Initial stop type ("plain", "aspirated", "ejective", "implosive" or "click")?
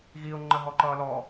click